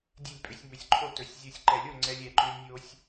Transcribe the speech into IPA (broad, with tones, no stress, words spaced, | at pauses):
dʲe˥˨lʲpʼʏ˨˦sʲ mʏ˨˦sʲǃʰo˥˨tɵ˨˩˦sʲ zʲo˧˩sʲǃɛ˨˩˦lʲo˥˨ ŋ͡ǀɛ˦˥lʲ ɛ˨˩˦ǃʏ˦˥lʲnʲo˦˥sʲ